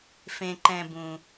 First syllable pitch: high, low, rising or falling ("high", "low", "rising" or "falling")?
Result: low